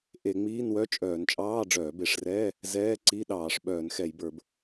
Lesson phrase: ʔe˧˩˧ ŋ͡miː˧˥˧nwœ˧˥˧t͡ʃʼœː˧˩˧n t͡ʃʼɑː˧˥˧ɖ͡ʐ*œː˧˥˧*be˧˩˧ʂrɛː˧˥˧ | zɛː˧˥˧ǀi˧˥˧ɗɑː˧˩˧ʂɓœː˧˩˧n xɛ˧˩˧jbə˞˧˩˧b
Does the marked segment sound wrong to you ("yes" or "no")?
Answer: yes